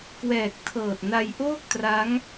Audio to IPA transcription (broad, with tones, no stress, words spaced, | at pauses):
kwɛː˨˩k̚tʰɤː˨˩t̚na˧j ʔoː˥˩k̚tra˦˥ŋ